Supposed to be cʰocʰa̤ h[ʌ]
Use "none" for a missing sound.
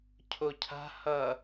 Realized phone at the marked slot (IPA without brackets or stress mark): ʌ